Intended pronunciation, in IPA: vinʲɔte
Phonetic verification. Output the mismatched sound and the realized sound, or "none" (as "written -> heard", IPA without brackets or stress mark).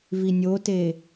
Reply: ɔ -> o